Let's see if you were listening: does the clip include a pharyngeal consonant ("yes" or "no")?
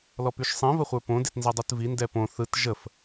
no